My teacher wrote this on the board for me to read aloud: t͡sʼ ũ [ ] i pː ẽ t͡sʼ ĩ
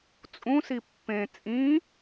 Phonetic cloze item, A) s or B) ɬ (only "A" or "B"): A